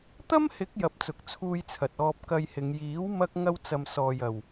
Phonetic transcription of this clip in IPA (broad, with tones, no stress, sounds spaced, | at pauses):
t̪ ɐ˥ m h ɪ˨˥ k̚ j ɐ˨ p̚ t͡s ʊ˨ k̚ t͡sʰ uː˧ j t͡sʰ ɐ˨ t̚ ɔː˧ p̚ k ɐ˧ j h ɪ˨˧ ŋ j iː˨˥ w m ɐ˧ k̚ ŋ ɐ˥ w t͡s ɐ˧ m s ɔː˨ j ɐ˨ w